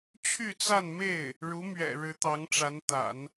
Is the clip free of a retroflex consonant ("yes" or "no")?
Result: no